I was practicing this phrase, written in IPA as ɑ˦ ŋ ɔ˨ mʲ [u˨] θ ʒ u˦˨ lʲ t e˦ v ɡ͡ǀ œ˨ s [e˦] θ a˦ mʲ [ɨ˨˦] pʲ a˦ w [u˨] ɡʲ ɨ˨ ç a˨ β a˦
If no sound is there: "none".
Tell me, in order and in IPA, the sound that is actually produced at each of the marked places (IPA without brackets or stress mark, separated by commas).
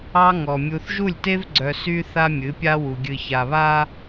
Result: u˨, y˦, ɨ˨˦, u˨